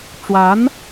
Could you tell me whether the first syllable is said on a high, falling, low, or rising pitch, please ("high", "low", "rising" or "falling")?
rising